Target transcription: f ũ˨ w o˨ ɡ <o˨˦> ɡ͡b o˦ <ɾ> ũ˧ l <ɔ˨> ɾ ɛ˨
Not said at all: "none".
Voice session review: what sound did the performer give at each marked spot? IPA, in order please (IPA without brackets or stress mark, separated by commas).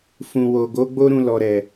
o˨˦, ɾ, ɔ˨